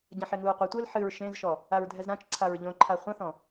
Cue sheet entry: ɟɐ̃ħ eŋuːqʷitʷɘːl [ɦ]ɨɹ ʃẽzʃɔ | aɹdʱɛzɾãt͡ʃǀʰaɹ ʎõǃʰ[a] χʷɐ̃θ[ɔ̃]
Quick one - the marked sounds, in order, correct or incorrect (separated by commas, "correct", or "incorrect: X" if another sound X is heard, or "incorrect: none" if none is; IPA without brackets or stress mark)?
incorrect: ħ, correct, correct